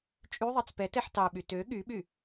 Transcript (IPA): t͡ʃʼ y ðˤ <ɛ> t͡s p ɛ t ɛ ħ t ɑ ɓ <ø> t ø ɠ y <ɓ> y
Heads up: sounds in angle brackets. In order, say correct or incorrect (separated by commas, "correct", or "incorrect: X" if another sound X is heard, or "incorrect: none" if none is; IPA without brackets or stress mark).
incorrect: e, incorrect: y, correct